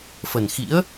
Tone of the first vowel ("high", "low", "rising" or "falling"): low